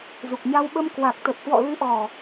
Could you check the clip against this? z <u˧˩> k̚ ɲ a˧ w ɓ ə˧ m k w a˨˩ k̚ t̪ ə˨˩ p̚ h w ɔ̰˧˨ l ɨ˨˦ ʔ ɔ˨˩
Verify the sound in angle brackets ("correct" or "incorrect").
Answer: incorrect